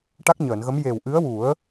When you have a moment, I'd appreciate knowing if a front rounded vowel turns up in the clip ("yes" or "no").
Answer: no